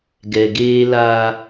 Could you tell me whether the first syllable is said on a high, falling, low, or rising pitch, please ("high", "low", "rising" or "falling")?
low